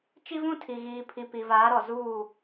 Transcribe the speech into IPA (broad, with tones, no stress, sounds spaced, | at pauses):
t͡ʃ i˦ v ũ˦ tʰ i˨ ɣ iː˨ pʰ i˨ p i˨ v aː˨˦ ɾ ɔ˨ z uː˦˨